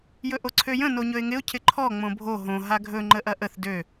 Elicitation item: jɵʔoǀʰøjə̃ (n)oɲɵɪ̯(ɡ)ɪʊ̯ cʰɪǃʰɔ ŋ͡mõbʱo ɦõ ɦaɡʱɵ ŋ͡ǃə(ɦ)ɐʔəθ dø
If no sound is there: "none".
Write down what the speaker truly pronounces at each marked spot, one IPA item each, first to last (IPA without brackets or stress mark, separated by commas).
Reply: n, ŋ, ʔ